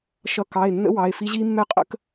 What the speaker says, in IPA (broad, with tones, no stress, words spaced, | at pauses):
ʃʌ˦˥ kɑ˩˧˩e̯ nːə̰˦˥ wɑ˩˧˩e̯fi˦˥ ʑi˦˥mːɛ˦˥qʼə̰˦˥k